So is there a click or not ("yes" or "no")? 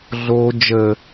no